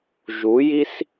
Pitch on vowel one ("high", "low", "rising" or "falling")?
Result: rising